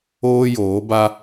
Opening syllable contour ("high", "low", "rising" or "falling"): high